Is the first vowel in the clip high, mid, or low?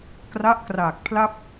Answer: low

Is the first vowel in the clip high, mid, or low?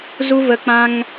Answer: high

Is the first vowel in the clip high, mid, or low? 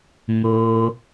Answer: mid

